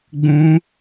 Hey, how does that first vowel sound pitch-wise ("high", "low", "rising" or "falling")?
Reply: high